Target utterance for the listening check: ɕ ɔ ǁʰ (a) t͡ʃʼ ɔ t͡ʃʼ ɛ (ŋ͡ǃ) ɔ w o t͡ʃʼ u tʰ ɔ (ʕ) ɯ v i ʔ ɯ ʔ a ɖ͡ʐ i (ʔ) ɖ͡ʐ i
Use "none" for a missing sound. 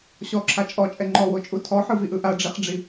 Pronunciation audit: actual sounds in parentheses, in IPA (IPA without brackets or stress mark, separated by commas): a, ŋ͡ǃ, ħ, χ